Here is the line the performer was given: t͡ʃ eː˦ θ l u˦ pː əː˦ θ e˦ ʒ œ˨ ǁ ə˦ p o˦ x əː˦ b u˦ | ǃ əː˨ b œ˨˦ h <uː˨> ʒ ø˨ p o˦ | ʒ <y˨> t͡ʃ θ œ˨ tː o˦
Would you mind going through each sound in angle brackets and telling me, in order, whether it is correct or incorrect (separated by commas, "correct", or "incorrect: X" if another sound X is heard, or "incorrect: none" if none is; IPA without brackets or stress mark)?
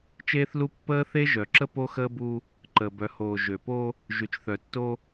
incorrect: oː˨, correct